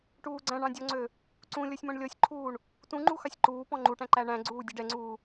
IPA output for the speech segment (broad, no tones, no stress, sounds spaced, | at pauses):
ʈ uː ɡ͡ǀ æ̃ ɳ ɑ̃ dʲ ɔ ŋ͡ǀ ø | ǀ ũ lʲ ɔ sʲ m ɔ̃ ɳ lʲ ɔ sʲ ǃʰ uː ɳ | t ũ ŋ͡ǃ u x ɑ sʲ ǃ uː p ɔ̃ ŋ͡ǃ u ʈ æ̃ ǃ æ ɳ æ̃ ɡ͡ǀ uː dʲ u ɖ ɛ ŋ͡ǀ uː